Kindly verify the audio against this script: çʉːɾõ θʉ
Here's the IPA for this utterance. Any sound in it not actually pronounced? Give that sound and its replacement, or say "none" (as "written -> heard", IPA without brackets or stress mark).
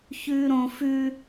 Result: θ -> f